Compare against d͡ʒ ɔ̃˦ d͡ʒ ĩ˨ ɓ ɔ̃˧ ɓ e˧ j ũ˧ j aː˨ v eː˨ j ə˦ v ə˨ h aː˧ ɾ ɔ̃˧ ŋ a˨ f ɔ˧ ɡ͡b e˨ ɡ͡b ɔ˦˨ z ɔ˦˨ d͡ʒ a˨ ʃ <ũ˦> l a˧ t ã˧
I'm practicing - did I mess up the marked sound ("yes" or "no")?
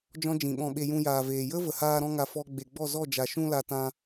yes